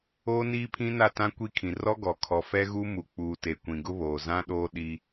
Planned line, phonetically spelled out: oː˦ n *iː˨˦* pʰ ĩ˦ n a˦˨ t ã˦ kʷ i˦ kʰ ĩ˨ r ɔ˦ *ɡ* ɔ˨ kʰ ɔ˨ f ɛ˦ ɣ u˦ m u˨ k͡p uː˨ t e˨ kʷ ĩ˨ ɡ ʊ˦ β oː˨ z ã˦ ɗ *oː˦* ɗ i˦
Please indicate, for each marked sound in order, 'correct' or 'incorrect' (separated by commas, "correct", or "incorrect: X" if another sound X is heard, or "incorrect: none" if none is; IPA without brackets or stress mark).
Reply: incorrect: iː˦, correct, correct